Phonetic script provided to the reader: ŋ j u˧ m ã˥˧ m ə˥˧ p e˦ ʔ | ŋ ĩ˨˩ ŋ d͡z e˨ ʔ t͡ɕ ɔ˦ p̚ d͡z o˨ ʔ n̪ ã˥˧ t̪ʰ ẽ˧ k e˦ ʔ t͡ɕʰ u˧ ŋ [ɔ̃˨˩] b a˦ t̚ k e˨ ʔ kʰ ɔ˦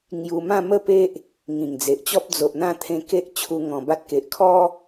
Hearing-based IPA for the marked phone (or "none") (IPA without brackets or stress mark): ɔ̃˨˩